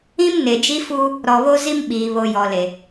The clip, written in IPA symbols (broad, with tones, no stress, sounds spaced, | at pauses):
ĩ˦ m n e˨ d͡ʒ i˦ f uː˦ | ɾ ɔ˨ β o˦ z i˦ m ɓ iː˨ β o˨ j ɔ˨ l e˨